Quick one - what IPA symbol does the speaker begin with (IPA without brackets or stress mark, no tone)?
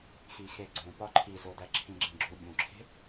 x